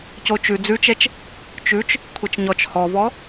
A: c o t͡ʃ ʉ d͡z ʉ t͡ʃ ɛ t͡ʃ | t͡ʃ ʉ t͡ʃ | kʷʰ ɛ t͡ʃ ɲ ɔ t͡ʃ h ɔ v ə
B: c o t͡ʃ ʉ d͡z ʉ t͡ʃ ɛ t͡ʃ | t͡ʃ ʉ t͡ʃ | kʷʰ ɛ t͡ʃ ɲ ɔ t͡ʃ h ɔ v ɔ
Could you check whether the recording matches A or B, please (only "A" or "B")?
B